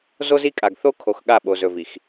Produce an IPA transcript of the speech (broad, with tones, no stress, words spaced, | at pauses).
zo˦zi˦kʼa˨ɡ θo˦ kʰo˨x ɠa˦˨ɓo˨ zɵ˨vi˨x